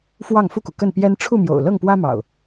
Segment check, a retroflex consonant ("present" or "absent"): present